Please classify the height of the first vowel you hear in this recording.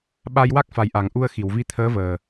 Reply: low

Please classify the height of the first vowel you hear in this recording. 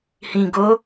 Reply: high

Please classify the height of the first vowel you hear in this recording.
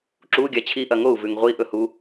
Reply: high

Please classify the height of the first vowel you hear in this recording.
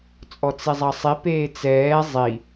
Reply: mid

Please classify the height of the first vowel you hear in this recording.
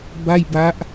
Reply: low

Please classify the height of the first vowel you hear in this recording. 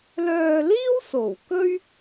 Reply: mid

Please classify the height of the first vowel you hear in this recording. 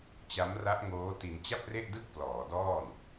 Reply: low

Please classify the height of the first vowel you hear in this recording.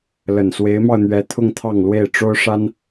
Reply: mid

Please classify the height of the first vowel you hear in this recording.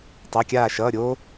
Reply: low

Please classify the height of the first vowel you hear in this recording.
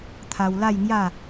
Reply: low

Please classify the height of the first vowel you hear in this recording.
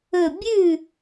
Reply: mid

